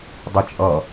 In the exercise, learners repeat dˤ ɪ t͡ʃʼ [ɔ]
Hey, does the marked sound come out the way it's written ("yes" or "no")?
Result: no